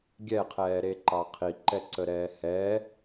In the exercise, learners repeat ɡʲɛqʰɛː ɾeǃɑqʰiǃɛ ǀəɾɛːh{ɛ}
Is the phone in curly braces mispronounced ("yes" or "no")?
no